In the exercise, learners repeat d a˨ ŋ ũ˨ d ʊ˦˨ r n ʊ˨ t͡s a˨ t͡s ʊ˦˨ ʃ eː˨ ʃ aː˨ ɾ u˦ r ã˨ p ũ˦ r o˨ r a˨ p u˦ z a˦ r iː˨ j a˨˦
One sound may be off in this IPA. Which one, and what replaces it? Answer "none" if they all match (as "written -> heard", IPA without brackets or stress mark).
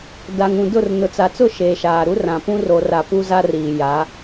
none